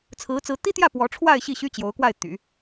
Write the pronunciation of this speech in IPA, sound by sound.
t͡sʰ ɹ̩˧˥ t͡s ɹ̩˧˥ t̪ i˥ t̪ j ä˥˩ p w ɔ˧˥ ʈ͡ʂʰ w a˥˧ ɪ̯ ɕ i˥˩ ɕ y˥ t͡ɕ j o˧˥ ʊ̯ k w a˥˩ ɪ̯ t̪ y̰˨˩˦

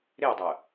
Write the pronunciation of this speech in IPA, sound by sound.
ɾ e o̯ dˤ ɤ

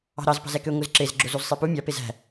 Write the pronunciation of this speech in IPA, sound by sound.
ɑ̤ ɾ ɑ z p ɑ̤ z æ k ø ŋʷ ɯ z ǁ e z ɡ͡ǁ o z u z sˤ e p u mʲ ɑ p e z æ̤

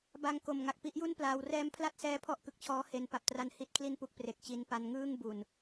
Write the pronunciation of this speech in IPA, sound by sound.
b a˧ ŋ k o˨˩ m ŋ a˨˩ k̚ p i˥˩ ʔ j u˥˩ n p l aː˧ w r ɛː˦˥ m pʰ l a˥˩ t̚ s ɛː˦˥ pʰ ɔ˦˥ ʔ k ɯ˨˩ k̚ t͡ɕʰ ɔː˦˥ h e˦˥ n p a˨˩ p̚ t r a˧ n h i˥˩ t̚ kʰ l i˥˩ n p u˦˥ k̚ p r e˨˩ k̚ t͡ɕ i˧ n p a˦˥ n ŋ ɯː˥˩ ŋ b u˨˩ n

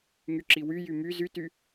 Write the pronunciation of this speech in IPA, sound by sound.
ŋ y ǁ i w y j y m y z y t y

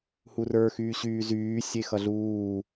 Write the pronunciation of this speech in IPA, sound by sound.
h u r ə˞ x yː ɕ yː z yː sʲ e x ʌ ɮ uː

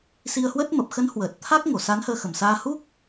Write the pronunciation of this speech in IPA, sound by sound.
s i˧ ə̯ h w ə˦˥ t̚ m ə˨˩ p̚ x ə˨˦ n h w əː˨˩ t̚ t̪ʰ a˦˥ k̚ ŋ o˧˩ s a˨˦ n h əː˧ x ə˨˩ m s aː˧ h u˦˥ k̚

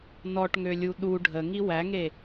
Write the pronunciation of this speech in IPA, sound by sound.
n ɔ ʈ ŋ ø lʲ u ɗ u ɖʱ ə ŋ i w æ ŋ e

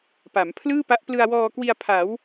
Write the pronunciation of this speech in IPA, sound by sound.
p a˩˦ m pʰ l ɯː˥˩ p a˦˥ ʔ p l ɯ˧ a̯ w ɔː˧ k w i˧ a̯ pʰ a˩˦ w

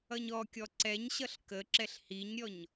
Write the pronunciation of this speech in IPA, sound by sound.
ʌ ɲ ɔ kʲ ɔ ǀ ɛ ɲ ɕ ʌ ɬ k ə ǁ ɛ ɬ h i ɲ ɾʲ ɔ ɲ

